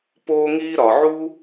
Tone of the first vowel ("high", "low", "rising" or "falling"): high